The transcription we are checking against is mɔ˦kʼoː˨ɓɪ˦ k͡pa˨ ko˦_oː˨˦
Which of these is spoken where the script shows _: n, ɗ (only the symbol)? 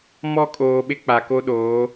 ɗ